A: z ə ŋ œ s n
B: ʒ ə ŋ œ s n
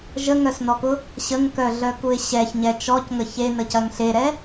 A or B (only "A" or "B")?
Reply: B